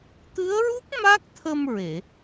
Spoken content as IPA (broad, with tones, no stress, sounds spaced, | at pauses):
t̪ ɨ˧˥ ə̯ ɹ u˦˥ k̚ m a˦˥ k̚ t̪ʰ ə˧ m ɹ e˨˩˨